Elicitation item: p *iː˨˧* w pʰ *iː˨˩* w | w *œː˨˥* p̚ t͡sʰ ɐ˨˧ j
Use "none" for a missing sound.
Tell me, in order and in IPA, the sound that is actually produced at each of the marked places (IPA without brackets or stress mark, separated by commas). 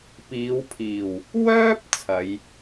iː˨˧, iː˨˩, œː˥